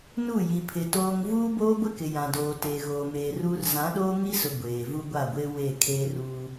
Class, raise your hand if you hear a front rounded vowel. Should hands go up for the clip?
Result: no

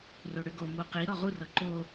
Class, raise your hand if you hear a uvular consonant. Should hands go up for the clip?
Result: yes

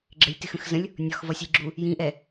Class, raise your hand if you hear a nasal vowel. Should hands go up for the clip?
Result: yes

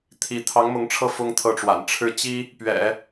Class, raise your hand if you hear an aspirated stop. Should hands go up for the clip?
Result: yes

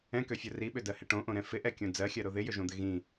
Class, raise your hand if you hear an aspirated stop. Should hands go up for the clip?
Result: no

